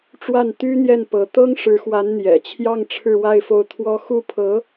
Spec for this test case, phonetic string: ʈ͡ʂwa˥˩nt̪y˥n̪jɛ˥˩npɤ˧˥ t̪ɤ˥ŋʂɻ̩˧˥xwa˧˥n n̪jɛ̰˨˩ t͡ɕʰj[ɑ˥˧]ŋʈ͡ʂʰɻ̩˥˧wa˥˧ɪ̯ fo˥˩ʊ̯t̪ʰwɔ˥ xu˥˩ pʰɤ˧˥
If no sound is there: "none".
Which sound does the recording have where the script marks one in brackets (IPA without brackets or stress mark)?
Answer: ɑ˥˧